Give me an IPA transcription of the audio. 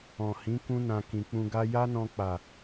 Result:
ɔ̃˨ h ĩ˨˦ k ũ˧ n ã˨ k ĩ˨ k͡p ũ˧ ɡ a˦ j a˦ n ɔ̃˧ k͡p a˨

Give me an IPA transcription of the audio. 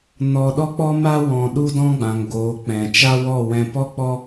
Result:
n ɔ˧ ɗ ɔ˦ k͡p ɔ˦ m a˦ w ɔ̃˨ ɗ u˦ d ɔ̃˦ ɡ͡b ã˨ ŋ ɡ oː˨˦ k͡p ɛ̃˨ t͡ʃ a˦ w ɔ˦˨ w ɛ̃˧ p ɔ˦ k͡p ɔ˦

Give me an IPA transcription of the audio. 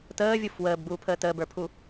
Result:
t əː vʲ u f w əː b ɡ͡b uː pʰ əː t əː b ə˞ pʰ u

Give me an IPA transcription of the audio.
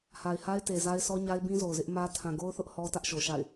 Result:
h a˨ ɪ̯ h a˦ ɪ̯ t e˨ z a˦ ɪ̯ sʰ ɔ˦ ɲ a˦ ɪ̯ b ĩ˦ z o˨ ʊ̯ z ɪ˦ ʔ m ä˦ tʰ ã˨ ɡ o˦ ʊ̯ θ ʊ˦ ʔ h ɔ˦ t ä˦ ʔ ʃ o˨ ʃ a̰˦˨ ɪ̯

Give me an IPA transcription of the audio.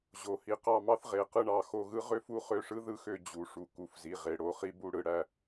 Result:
ʑ o˩˧ h i˩˧ q ɑ˥˨ m ɑ˥ θ ʁ e˩˧˩ q ɯ˥˨ ɳ ɑ˩˧˩ x o˥˨ ɣ ɯ˥ ʁ ø˥ f u˥ χ ø˥˨ ʂ ɯ˥ ð ɯ˥˨ x ø˥˨ d͡ʑ u˩˧ ʂ u˩˧ k u˩˧˩ f z i˩˧˩ ʁ e˩˧ ɽ o˩˧ χ i˥ b u˥˨ ɽ ɯ˩˧ ɽ æ˩˧˩

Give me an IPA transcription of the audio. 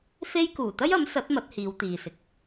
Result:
f e˥ j k uː˨˩ t̪ ɐ˥ j ɐ˨˥ m s ɐ˨˥ t̚ m ɐ˨˥ t̚ h iː˨˧ w t̪ iː˨ s ɪ˨ k̚

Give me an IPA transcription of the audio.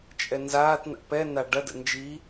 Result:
t͡ʃʼ ɛ n z aː t n a̰ p ɛ n a ɖ ɐ d ə̰ n d͡ʒ i

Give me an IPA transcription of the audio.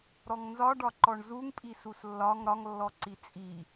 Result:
ɾ ɔ ŋ n z ɒ ɖ ɒ ǃ ɔ ɳ z u ŋ pʼ i s u s lː ɒ ŋ ɾ ɒ ŋ lː ɔ ǀ i t͡sʼ i

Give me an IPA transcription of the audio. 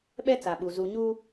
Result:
ɓ ɛ˦ t͡s a˨ ɓ u˨ z u˨ ɲ u˦

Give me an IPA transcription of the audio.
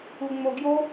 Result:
u ŋ͡m o ɡ j o

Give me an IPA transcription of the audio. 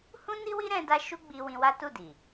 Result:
h ũ˦ n i˦ w i˦ ɾ ɛ̃˦ d a˦ ʃ u˦ ɡ͡b i˧ w ĩ˧ w a˦ t u˦˨ d i˨

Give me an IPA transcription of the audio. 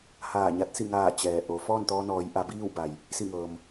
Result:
h aː˧˩ ɲ a˧˥ t̚ s i˧˩ ŋ aː˧˩ t͡ɕ ɛː˩ ʔ o˩˧ f ɔː˥˨ n t̪ ɔː˧ n ɔː˩˧ j ʔ a˩˧ b iː˥˨ w b a˩ j | s i˧˩ ŋ ɤː˩ m

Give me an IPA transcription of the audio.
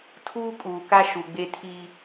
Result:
tʰ uː˦ kʼ uː˨ k a˦ ʃ u˨ ɡ͡b e˦ tʰ i˦

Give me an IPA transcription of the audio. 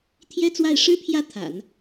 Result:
t̪ʰ j ɛ˥ t͡s w a˥˩ ɪ̯ ʂ ɻ̩˥ pʰ j ä˥˩ t̪ʰ a̰˨˩˦ n

